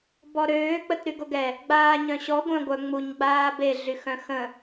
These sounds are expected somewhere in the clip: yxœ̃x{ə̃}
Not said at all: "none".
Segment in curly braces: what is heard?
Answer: ə̃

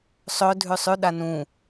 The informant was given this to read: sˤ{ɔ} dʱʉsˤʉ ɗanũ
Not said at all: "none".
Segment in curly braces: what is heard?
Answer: ɵ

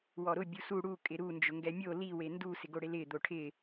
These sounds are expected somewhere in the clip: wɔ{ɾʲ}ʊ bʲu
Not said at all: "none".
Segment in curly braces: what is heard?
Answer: ɾ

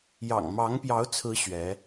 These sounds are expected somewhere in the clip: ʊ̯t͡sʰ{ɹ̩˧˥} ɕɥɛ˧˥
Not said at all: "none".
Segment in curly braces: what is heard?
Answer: ɹ̩˧˥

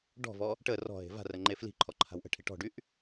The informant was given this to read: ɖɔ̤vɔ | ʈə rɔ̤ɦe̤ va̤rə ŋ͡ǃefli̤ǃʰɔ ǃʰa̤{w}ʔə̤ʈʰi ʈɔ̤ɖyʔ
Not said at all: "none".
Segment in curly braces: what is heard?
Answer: w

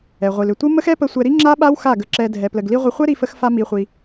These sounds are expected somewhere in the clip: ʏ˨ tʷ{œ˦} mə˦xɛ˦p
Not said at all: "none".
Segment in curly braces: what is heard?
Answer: ə˦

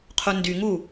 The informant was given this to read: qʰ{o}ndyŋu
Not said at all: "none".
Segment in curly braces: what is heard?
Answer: o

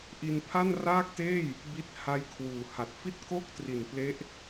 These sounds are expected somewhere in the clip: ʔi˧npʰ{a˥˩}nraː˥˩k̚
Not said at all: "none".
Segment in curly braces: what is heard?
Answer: a˥˩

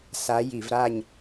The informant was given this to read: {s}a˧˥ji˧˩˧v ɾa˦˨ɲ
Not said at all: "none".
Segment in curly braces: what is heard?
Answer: s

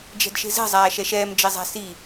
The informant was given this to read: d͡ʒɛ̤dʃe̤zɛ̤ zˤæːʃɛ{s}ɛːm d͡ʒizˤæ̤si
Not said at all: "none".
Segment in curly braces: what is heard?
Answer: ʃ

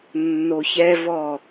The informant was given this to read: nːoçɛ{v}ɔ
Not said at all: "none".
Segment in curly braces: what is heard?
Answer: v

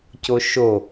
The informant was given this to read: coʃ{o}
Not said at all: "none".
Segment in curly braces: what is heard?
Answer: o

